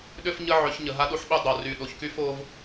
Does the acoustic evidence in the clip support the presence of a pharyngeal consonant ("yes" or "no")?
yes